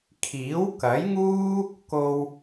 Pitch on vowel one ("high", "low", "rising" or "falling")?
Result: rising